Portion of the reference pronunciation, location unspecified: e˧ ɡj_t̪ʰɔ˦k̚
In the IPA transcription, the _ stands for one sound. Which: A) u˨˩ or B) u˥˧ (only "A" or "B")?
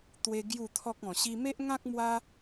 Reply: B